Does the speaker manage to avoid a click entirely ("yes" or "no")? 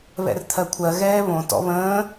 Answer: yes